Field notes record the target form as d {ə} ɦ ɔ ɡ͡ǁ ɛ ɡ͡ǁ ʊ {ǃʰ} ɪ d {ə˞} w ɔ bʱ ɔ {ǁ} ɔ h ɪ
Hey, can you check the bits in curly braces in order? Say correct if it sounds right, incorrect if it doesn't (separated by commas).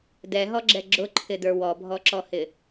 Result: incorrect, correct, correct, correct